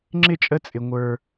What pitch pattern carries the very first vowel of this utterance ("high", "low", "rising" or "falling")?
high